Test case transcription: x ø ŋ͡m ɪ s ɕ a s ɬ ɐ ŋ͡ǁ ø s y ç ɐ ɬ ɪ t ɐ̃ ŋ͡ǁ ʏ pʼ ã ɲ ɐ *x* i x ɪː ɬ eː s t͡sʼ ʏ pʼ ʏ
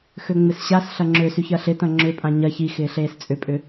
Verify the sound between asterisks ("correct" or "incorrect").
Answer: incorrect